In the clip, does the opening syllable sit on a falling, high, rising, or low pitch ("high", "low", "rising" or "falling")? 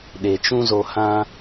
low